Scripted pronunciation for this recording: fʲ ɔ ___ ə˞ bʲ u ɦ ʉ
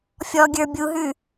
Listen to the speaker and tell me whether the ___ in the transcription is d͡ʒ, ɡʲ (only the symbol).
ɡʲ